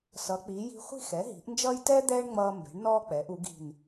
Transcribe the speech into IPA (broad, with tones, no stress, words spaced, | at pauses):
sʌ˩˧k͡pi˩˧ji̤˧χʷi̤˥˧x ɛ˩˧ɦi̤˩˧ʔnd͡ʒʌː˧j tɛ˥ d̪ɛː˥ɳŋ͡mʌː˧ mbɛ̤˩˧ɳnɔː˧ k͡pɛː˩˧ʔu˩˧ɡi̤˧˩n